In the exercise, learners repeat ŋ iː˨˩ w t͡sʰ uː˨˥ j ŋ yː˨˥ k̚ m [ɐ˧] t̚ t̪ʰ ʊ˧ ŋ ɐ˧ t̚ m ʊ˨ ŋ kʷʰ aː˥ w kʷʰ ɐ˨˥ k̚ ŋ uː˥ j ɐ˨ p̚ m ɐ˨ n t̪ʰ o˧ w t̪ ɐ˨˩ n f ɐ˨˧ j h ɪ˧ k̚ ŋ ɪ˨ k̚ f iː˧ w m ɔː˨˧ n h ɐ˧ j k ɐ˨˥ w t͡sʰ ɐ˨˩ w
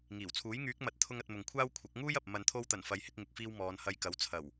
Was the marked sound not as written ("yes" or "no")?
yes